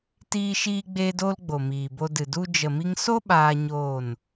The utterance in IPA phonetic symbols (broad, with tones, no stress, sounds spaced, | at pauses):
t iː˦ ʃ iː˦ ɡ͡b e˦ d o˦ l ɡ͡b o˨ m iː˨ b o˧ d ɨ˨ d u˧ d͡ʒ ə˨ m i˧ ŋ s o˦ ɓ aː˦ ɲ oː˦˨ n